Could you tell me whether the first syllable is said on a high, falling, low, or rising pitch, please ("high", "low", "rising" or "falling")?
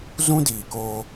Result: high